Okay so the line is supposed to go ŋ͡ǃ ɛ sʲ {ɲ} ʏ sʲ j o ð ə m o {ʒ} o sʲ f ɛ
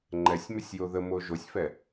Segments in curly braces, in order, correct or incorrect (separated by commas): incorrect, correct